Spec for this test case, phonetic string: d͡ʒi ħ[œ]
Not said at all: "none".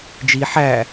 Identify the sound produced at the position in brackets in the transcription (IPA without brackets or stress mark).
æ